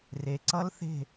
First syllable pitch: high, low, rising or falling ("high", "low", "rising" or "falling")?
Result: low